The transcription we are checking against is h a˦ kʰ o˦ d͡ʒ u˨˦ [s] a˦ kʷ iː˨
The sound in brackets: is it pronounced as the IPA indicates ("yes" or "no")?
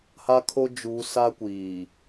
yes